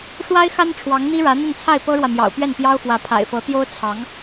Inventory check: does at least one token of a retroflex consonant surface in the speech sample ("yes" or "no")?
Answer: yes